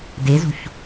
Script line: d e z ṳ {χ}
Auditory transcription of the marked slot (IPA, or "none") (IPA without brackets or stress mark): ç